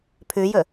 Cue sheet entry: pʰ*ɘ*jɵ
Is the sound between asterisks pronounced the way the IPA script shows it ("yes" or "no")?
no